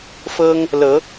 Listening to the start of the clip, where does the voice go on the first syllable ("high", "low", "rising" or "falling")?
high